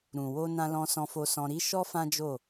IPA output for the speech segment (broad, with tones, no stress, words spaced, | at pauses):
ɾũ˨ wo˧nã˧lɔ̃˧ sɔ̃˧fo˧sɔ̃˧ ɾi˦ʃɔ˦ fã˦d͡ʒo˦˨